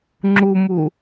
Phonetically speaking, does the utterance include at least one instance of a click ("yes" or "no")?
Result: yes